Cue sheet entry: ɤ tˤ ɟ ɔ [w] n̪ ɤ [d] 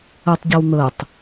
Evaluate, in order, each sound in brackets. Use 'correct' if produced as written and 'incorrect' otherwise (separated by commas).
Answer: correct, incorrect